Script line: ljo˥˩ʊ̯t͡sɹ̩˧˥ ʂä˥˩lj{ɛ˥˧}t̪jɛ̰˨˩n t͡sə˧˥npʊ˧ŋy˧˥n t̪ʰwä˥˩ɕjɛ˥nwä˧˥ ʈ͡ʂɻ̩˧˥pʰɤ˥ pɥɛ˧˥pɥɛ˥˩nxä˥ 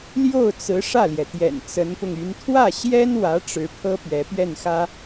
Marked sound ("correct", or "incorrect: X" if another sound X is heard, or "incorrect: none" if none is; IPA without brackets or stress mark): incorrect: ɛ˩